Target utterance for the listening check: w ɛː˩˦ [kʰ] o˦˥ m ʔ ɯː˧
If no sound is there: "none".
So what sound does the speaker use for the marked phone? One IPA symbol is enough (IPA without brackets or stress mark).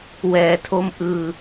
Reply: tʰ